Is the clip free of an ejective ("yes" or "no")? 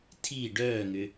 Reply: yes